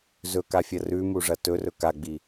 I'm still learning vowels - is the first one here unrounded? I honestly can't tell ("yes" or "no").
no